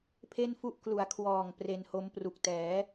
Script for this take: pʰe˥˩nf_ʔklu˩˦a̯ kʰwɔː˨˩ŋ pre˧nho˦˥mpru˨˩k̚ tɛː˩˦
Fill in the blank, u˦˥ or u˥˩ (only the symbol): u˦˥